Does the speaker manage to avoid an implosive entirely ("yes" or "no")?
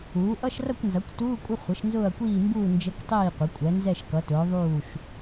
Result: yes